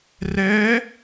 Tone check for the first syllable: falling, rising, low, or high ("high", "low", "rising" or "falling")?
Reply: rising